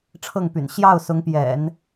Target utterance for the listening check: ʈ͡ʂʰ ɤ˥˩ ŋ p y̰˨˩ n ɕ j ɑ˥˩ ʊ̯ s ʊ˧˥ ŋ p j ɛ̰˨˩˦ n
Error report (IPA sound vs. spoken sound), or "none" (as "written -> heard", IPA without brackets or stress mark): none